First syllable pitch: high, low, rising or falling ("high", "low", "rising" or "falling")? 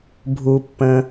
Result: low